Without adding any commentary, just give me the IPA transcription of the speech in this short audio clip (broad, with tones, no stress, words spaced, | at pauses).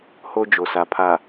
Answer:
ho˦ d͡ʒo˨sa˨ pʰa˨